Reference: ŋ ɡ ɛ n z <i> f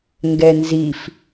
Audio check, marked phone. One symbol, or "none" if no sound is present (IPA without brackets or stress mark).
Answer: i